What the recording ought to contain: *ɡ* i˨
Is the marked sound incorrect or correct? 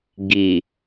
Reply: correct